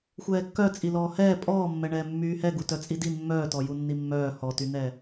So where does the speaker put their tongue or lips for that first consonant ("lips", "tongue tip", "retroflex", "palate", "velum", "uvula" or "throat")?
velum